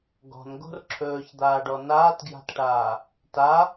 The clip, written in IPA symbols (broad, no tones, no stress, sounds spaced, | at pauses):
ɡ ɔ̤ n ɡ o̤ r ǁʰ ɵː ç d̪ aː ɖ ɔ n aː t ɡ j a̤ t ʈ aː | t a